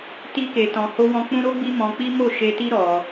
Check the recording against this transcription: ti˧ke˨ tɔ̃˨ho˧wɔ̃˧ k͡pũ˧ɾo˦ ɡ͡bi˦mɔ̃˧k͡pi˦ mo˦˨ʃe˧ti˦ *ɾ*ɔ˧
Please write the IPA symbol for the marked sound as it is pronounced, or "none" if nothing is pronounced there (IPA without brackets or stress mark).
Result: ɾ